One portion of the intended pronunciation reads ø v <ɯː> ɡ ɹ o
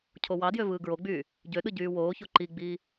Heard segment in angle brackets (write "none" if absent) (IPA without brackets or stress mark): ɯː